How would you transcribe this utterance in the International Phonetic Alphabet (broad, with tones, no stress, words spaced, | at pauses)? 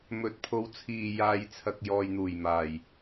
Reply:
mɵ˨˥t̚pʰo˨˧wt͡sʰiː˨ jaː˨jt͡sʰɐ˨k̚ jɔː˨jn̪uː˨˩jmaː˨˩j